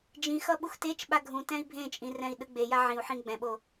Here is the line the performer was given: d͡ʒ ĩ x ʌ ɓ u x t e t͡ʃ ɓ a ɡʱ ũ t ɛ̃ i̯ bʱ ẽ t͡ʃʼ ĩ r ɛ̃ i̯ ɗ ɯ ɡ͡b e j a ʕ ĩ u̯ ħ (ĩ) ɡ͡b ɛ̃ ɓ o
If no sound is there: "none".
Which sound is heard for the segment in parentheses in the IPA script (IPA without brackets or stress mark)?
ĩ